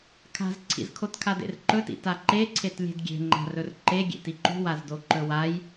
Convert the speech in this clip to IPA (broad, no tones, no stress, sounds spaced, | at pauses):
kʰ a̤ z ǀʰ ḭ z kʰ o t kʰ a d ḛ r ǃ ɵ t ḭ t a ǃ e ǀʰ e t lʲ e̤ d ɡʲ e̤ ŋ͡ǃ a̤ r ɵ r ǃ e ɡʲ ḛ t i ǃ ṳ w a z d o ǃ ɵ w a j